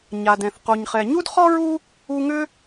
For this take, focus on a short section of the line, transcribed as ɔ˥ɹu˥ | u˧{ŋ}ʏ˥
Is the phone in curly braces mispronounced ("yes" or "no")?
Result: no